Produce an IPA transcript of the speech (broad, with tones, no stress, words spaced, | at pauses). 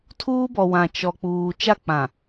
tʰuː˦bɔ˨wã˨ t͡ʃɔ˨k͡puː˨ t͡ʃa˦˨k͡pã˨